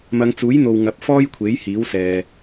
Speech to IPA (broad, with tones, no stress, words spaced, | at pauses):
mɐ˨˧ŋt͡suː˨˥jn̪o˨w ŋɐ˨˥p̚fɔː˥jkʷʰe˨˥j hiː˨˥wsɛː˨